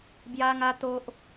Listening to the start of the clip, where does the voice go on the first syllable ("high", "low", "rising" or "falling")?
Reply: high